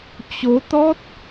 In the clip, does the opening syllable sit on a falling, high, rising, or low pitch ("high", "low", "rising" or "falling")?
rising